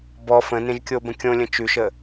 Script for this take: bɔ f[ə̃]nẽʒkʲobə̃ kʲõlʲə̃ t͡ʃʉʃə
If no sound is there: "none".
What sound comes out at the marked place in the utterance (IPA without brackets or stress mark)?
ə̃